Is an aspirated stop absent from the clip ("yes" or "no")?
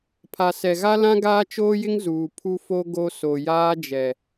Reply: no